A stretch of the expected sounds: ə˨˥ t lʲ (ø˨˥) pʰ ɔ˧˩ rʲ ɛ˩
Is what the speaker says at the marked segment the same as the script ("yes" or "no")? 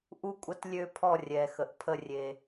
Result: no